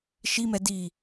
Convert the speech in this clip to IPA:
ʃ i m ɛ d i

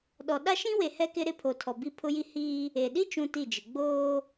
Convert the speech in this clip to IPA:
ɗ ɔ˨ ɗ a˦ ʃ ĩ˦ w e˨ h ɛ˦ k ɪ˦ ɾ ɪ˦˨ pʰ o˨ tʰ ɔ˨ b i˦ pʰ ʊ˦ j i˦ h iː˦ | e˨ ɗ i˦ t͡ʃ ũ˦ t i˦˨ d͡ʒ ɪ˨ ɡ͡b oː˦

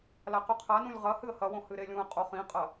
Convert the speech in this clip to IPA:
l a q ʉ qʰ a n ũ lʲ ʁ ɐ h ɨ ə̯ h ɐ w õ h ɨ ɾ e lʲ ũ ə̯ qʼ o χ ĩ qʼ ɐ

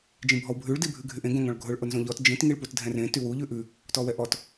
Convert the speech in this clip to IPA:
d͡ʒ ĩ bʱ ɔ w bʱ ʉ ɭ d i bʱ ʉ ɡʱ y ʔ ẽ ɡ õ ŋ ɔ̃ ɭ ɡʱ ʊ ɭ ʔ ʊ n z õ ʎ ɔ t d͡ʒ ĩ t ŋ i ɭ p u t dʱ ɛ̃ r ẽ t y w u ʎ ʉ ʔ ʉ | t ɔ w ɛ ʔ ɔ t

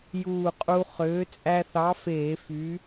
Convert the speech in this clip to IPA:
j uː˧˩ qʼ u˧ χ øː˨˥ t͡sʼ æ˧ θ ɑ˨˥ f eː˧˩˧ f y˨˥

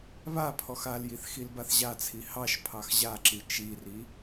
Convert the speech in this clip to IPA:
β a pʰ ɔ x a l j i θ x i l b a θ ʑ a t͡sʰ i h ɑ ʃ pʰ ɑ x ʑ a ǁ i t͡ʃ i r i

